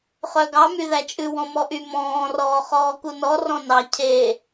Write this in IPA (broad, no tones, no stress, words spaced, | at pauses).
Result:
χœɡɑ myðæt͡ʃʼʉ wɔ̃mɔʔy mɔ̃ː rɔːχɔːkunɔ rɔ̃nɑ cʰe